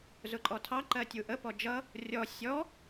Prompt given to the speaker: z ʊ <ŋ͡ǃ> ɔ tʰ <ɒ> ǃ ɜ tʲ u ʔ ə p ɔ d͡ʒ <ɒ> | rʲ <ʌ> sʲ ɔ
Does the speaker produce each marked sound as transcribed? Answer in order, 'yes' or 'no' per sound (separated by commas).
no, no, no, no